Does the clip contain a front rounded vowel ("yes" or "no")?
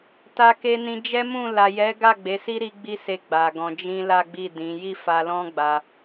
no